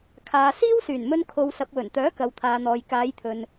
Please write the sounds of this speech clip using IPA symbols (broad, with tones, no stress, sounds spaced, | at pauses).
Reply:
kʰ aː˨ s iː˥ w s yː˨˩ n m ɵ˧ n kʰ o˨ w s ɐ˨ p̚ w ɵ˨˩ n t̪ œː˨˥ k ɐ˨ w t̪ʰ aː˨ n̪ ɔː˨ j k aː˨˧ j t̪ʰ ɵ˨ n